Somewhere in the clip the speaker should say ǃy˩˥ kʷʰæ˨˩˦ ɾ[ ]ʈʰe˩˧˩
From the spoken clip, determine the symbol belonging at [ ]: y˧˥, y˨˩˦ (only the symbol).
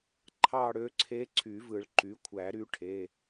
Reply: y˧˥